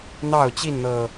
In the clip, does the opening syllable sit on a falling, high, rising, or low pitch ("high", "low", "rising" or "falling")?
falling